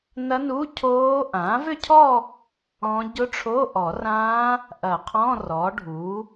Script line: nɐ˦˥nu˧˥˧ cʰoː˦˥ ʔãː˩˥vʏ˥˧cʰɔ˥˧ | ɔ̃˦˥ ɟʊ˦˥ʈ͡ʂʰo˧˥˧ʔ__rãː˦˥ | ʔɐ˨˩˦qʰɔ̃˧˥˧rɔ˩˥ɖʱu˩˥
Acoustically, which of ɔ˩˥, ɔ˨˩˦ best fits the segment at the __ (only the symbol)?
ɔ˨˩˦